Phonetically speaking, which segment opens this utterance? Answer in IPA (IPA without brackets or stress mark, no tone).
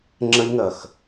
ŋ͡ǁ